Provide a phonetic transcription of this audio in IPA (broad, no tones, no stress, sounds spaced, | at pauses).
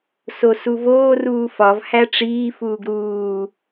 s o s u v oː r uː f ɒ v h æ ʈ͡ʂ iː f uː ɡ ɾ uː